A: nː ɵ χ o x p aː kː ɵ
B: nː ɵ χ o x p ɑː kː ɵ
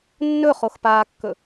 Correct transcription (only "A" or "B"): A